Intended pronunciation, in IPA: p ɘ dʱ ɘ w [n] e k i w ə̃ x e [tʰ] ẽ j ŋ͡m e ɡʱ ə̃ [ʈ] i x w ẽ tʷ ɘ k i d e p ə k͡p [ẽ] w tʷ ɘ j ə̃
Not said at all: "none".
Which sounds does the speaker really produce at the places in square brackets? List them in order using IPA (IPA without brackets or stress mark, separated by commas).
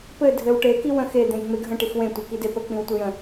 ʈ, d̪, ʈ, ĩ